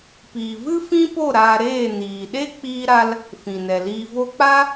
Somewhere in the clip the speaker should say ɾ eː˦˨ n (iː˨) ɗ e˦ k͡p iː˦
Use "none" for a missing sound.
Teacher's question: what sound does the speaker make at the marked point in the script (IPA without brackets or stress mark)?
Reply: iː˨